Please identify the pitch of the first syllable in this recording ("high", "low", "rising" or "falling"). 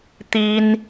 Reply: high